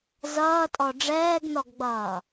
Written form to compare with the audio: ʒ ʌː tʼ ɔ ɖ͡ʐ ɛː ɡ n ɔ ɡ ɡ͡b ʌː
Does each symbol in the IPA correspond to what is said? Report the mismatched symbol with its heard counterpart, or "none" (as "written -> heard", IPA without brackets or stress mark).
ʒ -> z